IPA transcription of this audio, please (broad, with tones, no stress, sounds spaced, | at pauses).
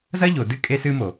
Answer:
z ɐ˦ ʎ o˨ d ɨ˦ kʼ e˦ s ɨ˦ m o˨